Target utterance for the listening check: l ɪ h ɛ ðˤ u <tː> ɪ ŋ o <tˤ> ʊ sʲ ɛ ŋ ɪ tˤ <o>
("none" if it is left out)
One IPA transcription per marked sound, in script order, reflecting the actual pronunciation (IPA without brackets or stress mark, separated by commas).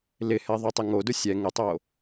tˤ, d, o